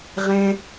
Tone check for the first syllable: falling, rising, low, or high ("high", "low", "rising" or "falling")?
high